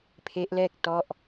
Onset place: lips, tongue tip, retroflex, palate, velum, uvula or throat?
lips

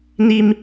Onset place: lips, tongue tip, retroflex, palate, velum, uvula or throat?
tongue tip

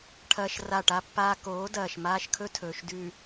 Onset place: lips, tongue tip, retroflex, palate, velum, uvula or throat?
retroflex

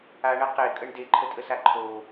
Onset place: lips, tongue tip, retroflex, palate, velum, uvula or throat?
retroflex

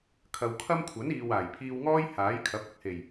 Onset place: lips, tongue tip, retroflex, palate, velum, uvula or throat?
velum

